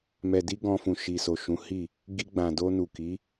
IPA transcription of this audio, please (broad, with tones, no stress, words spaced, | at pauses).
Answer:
mɛ˨di˧ ɡɔ̃˧fũ˨ ʃi˨so˨ʃũ˨˦ hi˦˨ | ɡi˧ɡ͡bã˨do˧nu˨ ki˨˦